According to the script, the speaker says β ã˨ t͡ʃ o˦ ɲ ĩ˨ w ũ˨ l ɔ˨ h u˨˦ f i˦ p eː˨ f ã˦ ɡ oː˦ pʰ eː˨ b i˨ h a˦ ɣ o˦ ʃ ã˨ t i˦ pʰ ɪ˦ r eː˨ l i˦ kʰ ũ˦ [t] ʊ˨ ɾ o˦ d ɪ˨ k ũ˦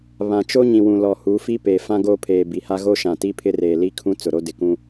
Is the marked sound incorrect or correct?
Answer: incorrect